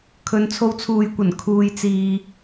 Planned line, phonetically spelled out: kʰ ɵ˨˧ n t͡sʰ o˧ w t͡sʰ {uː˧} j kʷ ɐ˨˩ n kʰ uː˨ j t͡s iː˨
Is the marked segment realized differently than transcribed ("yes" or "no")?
yes